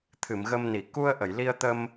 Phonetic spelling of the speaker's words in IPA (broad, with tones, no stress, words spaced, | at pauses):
t̪ʰɨ˨˩˨mɣə˧mni˨˩˨ ku˧ə̯ʔə˨˩˨jli˧ə̯t̪ə˧m